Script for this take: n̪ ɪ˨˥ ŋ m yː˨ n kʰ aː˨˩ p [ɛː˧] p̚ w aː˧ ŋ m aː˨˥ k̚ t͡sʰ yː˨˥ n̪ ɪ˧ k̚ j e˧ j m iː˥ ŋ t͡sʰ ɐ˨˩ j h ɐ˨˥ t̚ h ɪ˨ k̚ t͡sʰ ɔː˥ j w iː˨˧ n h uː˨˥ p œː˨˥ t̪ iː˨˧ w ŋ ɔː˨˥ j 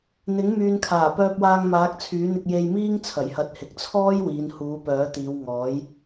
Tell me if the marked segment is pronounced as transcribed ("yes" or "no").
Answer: no